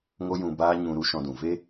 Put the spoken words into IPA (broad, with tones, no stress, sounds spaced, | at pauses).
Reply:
ŋ o˦ j ũ˧ b aː˦ ɲ ũ˧ ɾ u˦ ʃ ɔ̃˧ d ũ˨ v e˦